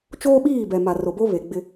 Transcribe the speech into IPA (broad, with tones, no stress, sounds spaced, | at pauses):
t͡ʃ oː˦ ɓ iː˦˨ b ɛ˨ m a˨ r o˨ b o˦ β e˨ ɡ͡b ɪ˦